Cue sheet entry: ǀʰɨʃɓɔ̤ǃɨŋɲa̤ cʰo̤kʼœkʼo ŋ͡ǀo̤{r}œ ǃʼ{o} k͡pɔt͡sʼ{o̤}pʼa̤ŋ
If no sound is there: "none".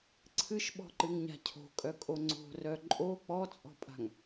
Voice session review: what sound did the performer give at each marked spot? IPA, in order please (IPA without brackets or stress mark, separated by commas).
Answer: r, o, ɔ̤